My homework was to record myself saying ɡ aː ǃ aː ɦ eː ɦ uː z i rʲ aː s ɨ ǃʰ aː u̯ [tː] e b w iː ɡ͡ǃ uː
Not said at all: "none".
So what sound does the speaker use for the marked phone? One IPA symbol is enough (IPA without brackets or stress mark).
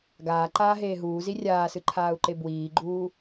ǃ